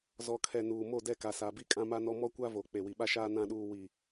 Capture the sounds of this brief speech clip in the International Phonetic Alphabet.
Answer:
z ɔ˨ kʰ ɛ˨ n uː˨ m o˦˨ d ɛ˦˨ k a˨ s a˨ b i˦ kʼ ã˦ m a˦ n ɔ˦ m ɔ˦ kʷ a˦ v o˨ k͡p e˨ w i˨ ɓ a˦ ʃ aː˦ n ã˦ ɗ uː˦ w i˦

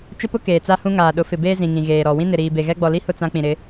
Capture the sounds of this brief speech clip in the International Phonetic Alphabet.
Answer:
t͡ʃ ɪ˦ p ʊ˦ k eː˨ t͡s a˦ h ũ˦ ŋ aː˨ ɗ ʊ˨˦ f ɪ˨ b eː˦ z ĩ˨ ŋ ĩ˨ ɣ eː˨ ɾ ɔ˨ w ĩ˦ n ɪ˨ ɾ iː˨ b e˨ ɣ ɛ˦ ɡ͡b ɔ˨ l i˦ h ʊ˦˨ t͡s ã˦ k͡p ĩ˨ ɾ ɪ˨˦

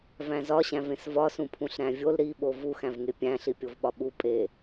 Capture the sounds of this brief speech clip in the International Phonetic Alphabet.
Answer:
v æ̃ z ɒ ɕ æ̃ v ẽ s v ɒ s ũ pʰ ũ ɬ ɾ æ̃ vʲ o l ɾ i ɓ o v u x æ̃ v ŋ e pʲ æ̃ ɬ i pʲ o v ɓ ɒ ɓ u pʼ e

